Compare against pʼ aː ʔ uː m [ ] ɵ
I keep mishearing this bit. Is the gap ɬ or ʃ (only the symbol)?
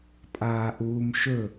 ʃ